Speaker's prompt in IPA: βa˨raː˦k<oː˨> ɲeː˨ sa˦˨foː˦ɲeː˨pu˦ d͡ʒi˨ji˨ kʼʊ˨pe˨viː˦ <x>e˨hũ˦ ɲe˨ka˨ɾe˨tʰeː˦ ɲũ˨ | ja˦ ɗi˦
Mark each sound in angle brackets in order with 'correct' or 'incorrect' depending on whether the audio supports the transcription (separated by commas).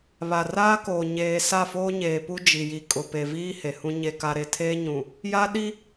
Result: correct, incorrect